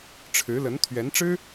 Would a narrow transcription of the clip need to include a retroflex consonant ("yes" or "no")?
yes